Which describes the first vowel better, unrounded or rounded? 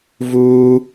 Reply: rounded